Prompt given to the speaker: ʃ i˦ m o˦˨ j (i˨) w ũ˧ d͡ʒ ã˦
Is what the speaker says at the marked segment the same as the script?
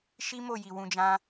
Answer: yes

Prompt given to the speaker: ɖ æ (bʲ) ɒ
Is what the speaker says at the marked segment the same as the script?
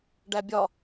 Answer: yes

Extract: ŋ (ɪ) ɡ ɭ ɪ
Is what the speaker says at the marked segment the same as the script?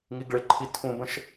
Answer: no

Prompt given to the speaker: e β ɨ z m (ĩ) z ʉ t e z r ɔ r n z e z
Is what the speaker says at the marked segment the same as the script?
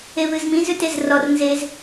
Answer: yes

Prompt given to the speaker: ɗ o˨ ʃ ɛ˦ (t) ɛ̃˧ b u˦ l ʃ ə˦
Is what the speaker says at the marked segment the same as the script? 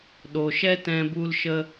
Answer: yes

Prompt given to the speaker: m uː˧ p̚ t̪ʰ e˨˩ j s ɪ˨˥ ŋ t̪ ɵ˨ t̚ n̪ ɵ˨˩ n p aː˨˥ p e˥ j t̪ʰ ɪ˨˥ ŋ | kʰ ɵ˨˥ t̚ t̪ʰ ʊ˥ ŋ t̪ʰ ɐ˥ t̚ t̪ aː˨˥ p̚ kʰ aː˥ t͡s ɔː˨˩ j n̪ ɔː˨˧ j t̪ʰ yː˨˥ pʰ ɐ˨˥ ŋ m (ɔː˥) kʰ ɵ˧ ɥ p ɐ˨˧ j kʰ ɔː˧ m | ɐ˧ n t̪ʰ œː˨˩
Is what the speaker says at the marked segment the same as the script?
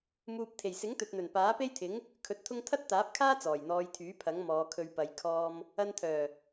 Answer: no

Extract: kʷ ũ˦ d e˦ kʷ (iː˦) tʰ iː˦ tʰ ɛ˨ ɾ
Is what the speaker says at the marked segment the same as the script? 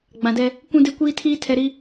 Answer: yes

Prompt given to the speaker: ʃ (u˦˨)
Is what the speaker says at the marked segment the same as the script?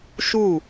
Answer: yes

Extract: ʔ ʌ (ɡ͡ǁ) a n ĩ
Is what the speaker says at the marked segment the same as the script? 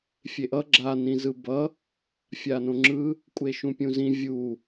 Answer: yes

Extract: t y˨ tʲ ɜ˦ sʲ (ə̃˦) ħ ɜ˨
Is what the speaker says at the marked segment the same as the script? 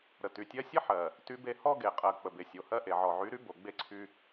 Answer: no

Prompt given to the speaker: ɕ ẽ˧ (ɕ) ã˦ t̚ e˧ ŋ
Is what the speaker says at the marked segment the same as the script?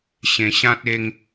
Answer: yes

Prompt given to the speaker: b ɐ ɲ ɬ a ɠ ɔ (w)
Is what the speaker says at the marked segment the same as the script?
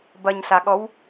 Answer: yes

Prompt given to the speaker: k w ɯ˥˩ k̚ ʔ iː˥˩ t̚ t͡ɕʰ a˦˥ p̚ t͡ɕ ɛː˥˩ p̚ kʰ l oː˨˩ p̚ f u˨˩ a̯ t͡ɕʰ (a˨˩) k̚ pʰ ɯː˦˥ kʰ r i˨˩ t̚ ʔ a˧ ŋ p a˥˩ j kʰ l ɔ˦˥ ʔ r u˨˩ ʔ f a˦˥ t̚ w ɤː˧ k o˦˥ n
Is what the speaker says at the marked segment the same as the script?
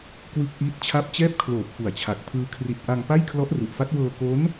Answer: yes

